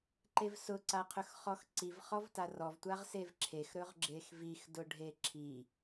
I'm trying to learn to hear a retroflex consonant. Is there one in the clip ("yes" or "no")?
yes